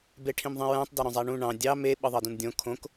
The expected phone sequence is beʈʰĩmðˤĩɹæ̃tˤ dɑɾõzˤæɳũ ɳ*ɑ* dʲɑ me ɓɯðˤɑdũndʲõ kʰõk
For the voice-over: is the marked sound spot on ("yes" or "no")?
no